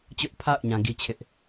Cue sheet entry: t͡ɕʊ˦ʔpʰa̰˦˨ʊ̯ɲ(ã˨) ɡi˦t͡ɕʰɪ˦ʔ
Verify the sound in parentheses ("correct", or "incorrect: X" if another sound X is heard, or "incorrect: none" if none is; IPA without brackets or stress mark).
correct